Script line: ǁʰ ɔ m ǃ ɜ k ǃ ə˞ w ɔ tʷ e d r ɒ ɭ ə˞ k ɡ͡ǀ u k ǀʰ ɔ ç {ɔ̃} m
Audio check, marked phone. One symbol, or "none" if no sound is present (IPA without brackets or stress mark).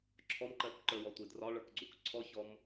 ɔ